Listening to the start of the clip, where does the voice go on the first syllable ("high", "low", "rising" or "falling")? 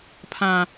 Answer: high